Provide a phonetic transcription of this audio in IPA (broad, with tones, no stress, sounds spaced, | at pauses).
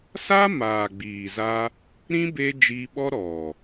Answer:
s a˦ m aː˨ ɡ͡b iː˨ z a˧ | ɾ ĩ˦ b eː˦ d͡ʒ iː˧ ɓ ɔ˦ ɾ ɔ˨